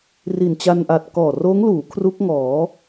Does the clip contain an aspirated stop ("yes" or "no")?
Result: yes